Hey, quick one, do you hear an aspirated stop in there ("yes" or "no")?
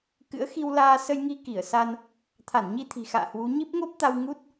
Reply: yes